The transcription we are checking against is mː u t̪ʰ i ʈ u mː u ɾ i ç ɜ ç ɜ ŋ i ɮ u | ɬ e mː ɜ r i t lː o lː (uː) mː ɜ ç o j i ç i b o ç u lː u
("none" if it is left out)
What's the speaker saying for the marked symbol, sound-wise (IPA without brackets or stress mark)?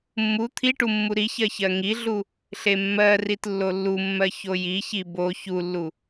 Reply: u